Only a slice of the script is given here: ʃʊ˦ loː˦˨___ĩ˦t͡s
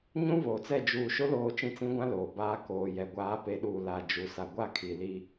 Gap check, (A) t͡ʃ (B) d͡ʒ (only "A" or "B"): A